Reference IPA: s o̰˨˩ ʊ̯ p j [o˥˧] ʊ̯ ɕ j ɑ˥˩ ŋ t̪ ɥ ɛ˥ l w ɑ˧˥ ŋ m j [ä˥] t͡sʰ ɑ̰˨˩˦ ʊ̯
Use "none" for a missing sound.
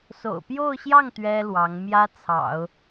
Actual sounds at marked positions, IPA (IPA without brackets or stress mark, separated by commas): o˥˧, ä˥